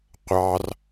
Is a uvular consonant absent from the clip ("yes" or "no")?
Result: no